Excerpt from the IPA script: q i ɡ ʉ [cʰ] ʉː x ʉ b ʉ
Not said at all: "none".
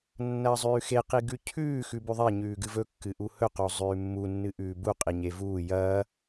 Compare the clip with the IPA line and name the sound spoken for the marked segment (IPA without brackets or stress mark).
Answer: cʰ